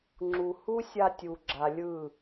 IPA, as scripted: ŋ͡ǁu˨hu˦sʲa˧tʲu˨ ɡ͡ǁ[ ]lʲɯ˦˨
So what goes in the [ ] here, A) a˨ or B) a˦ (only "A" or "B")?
A